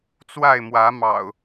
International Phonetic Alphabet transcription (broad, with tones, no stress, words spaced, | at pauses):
t͡swa˥˨ɪ̯mwä˨˦mɑ̰˨˩ʊ̯